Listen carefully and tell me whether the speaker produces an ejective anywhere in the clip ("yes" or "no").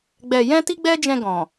no